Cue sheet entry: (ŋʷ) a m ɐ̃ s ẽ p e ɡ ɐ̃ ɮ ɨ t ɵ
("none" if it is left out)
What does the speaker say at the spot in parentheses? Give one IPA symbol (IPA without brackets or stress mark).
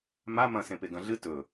m